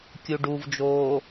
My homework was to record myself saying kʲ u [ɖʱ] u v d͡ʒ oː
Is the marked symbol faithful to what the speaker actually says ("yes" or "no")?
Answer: no